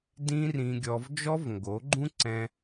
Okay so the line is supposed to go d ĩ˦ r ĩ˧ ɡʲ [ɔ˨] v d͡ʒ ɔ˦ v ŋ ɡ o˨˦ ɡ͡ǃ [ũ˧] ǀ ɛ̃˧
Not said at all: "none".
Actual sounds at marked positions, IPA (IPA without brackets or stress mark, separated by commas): ɔ˧, ũ˦